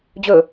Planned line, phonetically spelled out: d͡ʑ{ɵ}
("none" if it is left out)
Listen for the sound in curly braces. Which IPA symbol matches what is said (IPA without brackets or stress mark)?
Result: ɵ